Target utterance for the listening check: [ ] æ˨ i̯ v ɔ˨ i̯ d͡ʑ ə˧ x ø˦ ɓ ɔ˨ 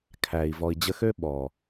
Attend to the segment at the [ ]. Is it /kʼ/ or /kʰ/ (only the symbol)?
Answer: kʰ